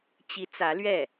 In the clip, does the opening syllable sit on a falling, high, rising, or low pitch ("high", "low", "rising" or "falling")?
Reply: rising